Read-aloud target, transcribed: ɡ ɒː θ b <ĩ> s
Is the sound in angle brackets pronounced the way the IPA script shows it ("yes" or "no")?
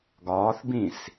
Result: yes